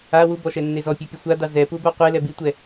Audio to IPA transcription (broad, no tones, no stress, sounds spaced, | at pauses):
a w u b ɔ ʃ ɛ nː e z ɔ pʲ u pʲ u sʷ a d ɑ z ɛ p u b a qʷ e l ɛ b i tʷ ɛ